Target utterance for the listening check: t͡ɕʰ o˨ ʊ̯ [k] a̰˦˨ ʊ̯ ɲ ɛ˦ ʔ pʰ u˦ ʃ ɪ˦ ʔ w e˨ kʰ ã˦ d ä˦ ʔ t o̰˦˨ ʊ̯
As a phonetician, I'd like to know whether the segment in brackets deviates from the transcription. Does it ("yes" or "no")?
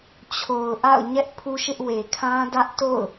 yes